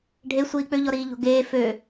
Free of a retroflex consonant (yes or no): no